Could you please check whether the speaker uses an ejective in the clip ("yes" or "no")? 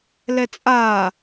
yes